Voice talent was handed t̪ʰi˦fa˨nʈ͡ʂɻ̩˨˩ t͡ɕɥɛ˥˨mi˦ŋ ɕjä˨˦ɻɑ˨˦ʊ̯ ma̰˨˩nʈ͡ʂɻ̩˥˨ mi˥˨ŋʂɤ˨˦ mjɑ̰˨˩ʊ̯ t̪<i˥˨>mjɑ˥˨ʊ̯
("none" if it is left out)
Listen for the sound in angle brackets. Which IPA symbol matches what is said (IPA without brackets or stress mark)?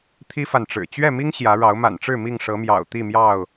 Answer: i˥˨